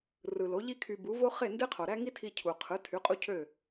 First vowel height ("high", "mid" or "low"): high